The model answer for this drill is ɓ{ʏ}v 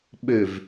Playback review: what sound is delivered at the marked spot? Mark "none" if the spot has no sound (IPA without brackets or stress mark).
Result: ʏ